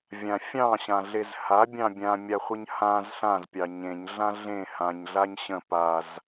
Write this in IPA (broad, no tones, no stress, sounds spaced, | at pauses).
vʲ ã fʲ ɑ̃ ɕ ã ɮ e z h a bʲ ɑ̃ bʲ ã mʲ a χʷ ə ɲ h ã z ɬ ã z pʲ ɑ ɲ ẽ ɲ ɮ ã ɮ ẽ h ã ɲ ɮ a ɲ ɕ ə̃ p a z